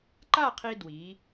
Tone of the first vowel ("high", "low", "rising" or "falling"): falling